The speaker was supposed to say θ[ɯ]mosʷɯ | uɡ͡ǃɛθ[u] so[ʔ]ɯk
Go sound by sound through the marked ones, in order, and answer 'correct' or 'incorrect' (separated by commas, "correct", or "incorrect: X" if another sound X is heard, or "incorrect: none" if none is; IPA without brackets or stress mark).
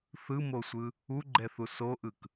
correct, correct, correct